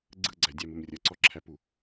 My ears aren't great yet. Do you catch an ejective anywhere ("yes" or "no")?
no